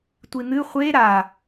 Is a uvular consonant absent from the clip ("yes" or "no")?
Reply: no